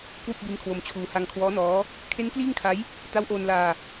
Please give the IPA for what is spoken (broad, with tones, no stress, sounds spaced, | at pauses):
k w u˥˩ k̚ b i˦˥ n kʰ w o˧ m t͡ɕʰ uː˧ h a˧ ŋ kʰ w ɔː˦˥ n ɔː˦˥ | kʰ e˦˥ n k l iː˥˩ ŋ kʰ a˦˥ j | t a˦˥ w ʔ oː˧ n l aː˧